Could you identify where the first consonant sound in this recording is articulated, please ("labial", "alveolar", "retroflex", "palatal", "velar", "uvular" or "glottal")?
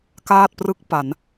velar